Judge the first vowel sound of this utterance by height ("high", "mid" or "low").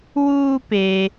high